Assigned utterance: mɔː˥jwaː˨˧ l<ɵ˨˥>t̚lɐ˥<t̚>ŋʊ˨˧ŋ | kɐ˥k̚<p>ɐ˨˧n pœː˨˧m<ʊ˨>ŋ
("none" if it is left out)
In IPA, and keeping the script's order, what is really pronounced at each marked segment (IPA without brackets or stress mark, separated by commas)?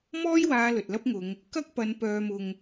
ɵ˨, p̚, p, ʊ˨